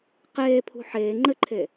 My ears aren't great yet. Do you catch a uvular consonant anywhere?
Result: yes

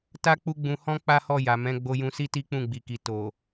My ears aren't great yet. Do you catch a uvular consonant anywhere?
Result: no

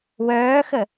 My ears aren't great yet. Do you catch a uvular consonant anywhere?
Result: no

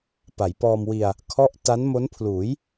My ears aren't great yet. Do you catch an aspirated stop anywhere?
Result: yes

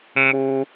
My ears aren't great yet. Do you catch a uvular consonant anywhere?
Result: no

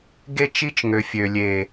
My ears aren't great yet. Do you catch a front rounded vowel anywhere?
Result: yes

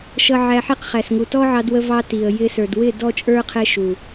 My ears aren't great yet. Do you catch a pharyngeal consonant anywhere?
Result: yes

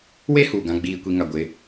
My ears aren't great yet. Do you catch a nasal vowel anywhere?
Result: yes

